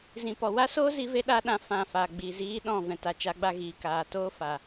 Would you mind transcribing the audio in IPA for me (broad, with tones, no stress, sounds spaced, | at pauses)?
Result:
z ĩ˨ p ɔ˨ w a˦ s oː˦ z i˧ v e˧ ɗ a˧ ɗ ã˨˦ f ã˨ f a˨ ɡ͡b i˨ z iː˧ ɗ ɔ̃˦˨ v ɛ̃˨ t a˨ t͡ʃ a˨˦ ɡ͡b a˧ ɣ iː˨ k aː˨ t oː˦ f a˨